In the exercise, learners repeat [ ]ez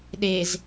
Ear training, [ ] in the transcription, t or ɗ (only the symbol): ɗ